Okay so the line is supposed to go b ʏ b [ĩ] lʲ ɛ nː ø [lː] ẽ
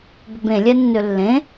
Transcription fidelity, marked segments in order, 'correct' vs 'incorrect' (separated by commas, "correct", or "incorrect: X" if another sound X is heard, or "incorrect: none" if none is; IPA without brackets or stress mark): incorrect: ẽ, correct